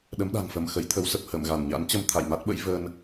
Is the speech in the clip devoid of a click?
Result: yes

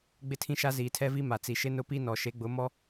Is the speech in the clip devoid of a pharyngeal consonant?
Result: yes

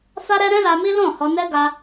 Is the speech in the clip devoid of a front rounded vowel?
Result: yes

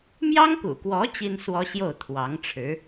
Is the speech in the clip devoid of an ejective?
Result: yes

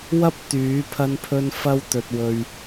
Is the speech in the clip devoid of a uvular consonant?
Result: yes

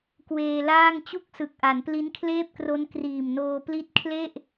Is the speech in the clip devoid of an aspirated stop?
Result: no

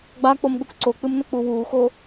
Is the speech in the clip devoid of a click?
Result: no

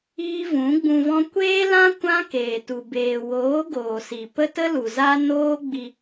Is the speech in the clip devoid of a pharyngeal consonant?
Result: yes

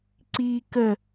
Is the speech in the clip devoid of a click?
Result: no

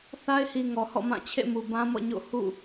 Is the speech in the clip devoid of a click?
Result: yes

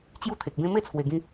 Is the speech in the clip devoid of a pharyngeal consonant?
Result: yes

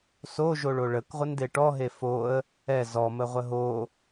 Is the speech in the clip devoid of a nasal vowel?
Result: yes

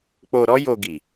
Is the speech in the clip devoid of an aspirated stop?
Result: yes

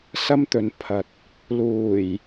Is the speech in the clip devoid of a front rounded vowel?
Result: yes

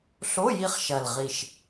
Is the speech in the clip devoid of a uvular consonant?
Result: no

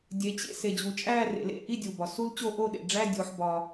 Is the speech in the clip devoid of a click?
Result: yes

